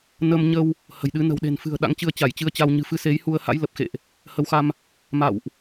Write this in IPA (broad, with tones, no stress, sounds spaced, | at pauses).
n ə˧ m ɲ ə˧ w | h ə̤˨˩ j ɗ ɨ˨˦ n ə̤˨˩ w ɗ e̤˨˩ n f ɨ̤˨˩ ə̯ ɗ a̰˧˥ ŋ t͡ɕ ɨ˧ ə̯ t͡ɕ a˧˩ j t͡ɕ ɨ˧ ə̯ t͡ɕ a˧ w ɲ ɨ̤˨˩ f ɨ˧ s e˨˦ j h u˧ ə̯ h a̰˧˥ j l ə˨˩ p̚ x ḛ˧˨ ʔ | h ə˨˦ w x a˧ m | m a̰˧˨ w ʔ